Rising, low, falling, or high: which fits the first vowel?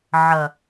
low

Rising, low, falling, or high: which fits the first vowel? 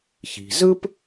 low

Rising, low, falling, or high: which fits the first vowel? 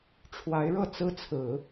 rising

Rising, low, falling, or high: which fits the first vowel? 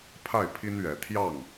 falling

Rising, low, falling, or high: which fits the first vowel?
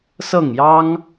falling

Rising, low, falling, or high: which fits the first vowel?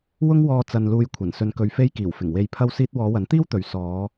high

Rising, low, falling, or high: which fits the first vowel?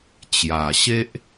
low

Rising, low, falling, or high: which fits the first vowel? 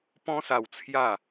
high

